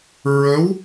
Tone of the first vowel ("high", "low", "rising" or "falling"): rising